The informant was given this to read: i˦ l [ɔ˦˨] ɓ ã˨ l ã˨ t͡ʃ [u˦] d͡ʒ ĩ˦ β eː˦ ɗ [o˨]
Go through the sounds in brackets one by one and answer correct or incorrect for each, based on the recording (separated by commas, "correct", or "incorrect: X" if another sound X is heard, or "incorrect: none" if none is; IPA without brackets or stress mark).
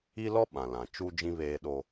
incorrect: ɔ˦, correct, incorrect: o˦